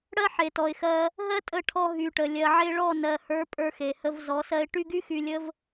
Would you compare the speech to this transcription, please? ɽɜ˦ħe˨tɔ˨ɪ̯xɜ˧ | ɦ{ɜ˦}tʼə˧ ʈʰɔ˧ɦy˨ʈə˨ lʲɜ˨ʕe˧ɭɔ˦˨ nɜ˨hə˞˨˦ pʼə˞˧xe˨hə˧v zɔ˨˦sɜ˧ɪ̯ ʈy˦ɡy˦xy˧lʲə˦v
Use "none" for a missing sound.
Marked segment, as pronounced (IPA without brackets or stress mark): ɜ˦